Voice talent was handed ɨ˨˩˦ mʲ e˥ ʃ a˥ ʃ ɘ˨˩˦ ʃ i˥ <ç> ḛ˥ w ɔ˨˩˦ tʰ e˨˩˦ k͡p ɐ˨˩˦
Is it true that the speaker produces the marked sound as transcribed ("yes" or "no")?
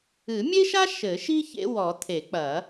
yes